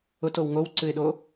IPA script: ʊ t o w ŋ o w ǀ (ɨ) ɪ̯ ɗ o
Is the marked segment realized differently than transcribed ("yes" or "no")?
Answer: no